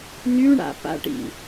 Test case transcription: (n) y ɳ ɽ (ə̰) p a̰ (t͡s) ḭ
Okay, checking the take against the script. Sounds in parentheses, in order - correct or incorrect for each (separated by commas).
correct, incorrect, incorrect